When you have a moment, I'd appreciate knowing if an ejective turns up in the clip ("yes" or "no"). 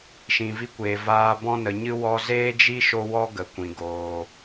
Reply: no